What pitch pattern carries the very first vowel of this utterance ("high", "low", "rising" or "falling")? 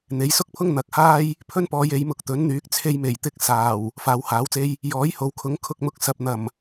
rising